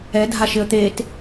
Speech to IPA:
ɛ dʱ a ʃ ɪ ə̯ t̪ e t

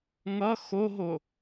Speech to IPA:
ŋ ʌ x o ɦ o

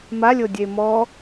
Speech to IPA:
m a lʲ o dʲ e m ɔ

